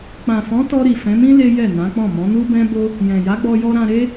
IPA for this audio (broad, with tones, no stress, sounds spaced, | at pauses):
k͡p ã˨ f ɔ̃˨˦ t ɔ˧ ɾ i˨ f ɛ̃˨˦ m ĩ˦ l e˦ j ɛ˦˨ n ã˨˦ k͡p ɔ̃˦˨ m ɔ̃˨˦ n u˦ b ɛ̃˦ b o˦ | j ɛ̃˨ j a˨˦ ɡ͡b ɔ˧ j ɔ˧ ɾ ã˧ ɾ e˦